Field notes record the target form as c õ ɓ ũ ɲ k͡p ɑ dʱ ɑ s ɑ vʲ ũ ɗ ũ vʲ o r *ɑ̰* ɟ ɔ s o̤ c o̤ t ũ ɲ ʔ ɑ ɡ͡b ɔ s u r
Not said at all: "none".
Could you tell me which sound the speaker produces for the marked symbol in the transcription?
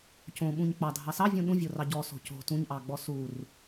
ɑ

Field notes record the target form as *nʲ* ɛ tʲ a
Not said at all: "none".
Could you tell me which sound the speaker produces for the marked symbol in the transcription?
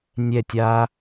nʲ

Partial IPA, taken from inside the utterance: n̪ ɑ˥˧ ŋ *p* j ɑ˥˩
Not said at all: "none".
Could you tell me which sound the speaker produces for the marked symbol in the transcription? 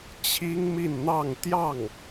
t̪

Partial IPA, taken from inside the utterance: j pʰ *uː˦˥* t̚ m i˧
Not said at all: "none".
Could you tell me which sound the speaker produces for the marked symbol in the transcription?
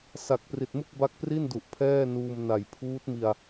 uː˦˥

